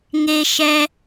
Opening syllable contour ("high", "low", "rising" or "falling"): high